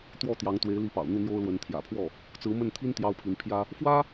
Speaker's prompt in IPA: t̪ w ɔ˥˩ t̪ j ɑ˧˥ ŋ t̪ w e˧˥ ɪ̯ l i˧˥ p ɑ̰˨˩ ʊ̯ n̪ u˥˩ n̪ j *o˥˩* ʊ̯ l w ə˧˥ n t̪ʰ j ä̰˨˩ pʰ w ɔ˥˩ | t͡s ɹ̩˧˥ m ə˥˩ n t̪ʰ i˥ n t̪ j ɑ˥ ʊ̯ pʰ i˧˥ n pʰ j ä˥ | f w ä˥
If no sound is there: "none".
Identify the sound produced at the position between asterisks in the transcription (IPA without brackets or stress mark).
o˥